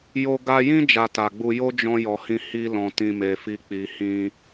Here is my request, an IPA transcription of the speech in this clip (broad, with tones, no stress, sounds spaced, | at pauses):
j o˧ ɡ a˧ j ĩ˦ d͡ʒ a˧ t a˨ ɡ͡b u˧ j o˦ d͡ʒ ɔ̃˧ j ɔ˨ h ĩ˧ h i˧ l ɔ̃˨ t ĩ˨ m e˨ f i˧ k͡p i˨ h ĩ˧